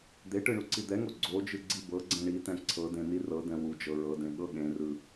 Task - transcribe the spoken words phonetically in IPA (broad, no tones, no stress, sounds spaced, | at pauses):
d̪ e ʈ ɯ ɳ u ǀ i d̪ ɛ ŋ o ɡ͡ǀ o d͡ʒ ɯ ɡ͡ǀ i b ɤ ɡ͡ǀ ɛ̃ ɳ i t ɛ̃ ǀʰ ɤ d ẽ n i r ɤ d ɛ̃ w u d͡ʒ ɤ ɹ ɤ d ẽ ɠ ɤ ɠ ẽ r ɯ